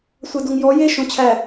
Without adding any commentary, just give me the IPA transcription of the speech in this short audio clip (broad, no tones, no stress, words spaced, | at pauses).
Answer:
sʷædoŋjɔ je ʃõt͡ɕʰæ